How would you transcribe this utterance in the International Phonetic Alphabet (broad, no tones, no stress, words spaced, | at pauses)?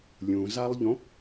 lʲũzalˠʎõ